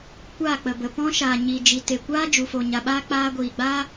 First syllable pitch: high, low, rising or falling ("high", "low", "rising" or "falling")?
falling